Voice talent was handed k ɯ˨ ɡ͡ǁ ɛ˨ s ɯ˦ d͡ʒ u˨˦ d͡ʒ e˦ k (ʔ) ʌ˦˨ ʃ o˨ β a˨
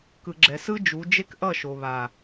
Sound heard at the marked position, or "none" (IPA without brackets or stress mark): ʔ